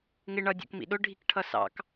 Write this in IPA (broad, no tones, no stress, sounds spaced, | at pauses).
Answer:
ŋ ɪ ɳ ʌ dʲ ɔ̰ k m ḭ ɗ ʊ ɖʱ i k ʈʰ ʌ s ɑ̰ k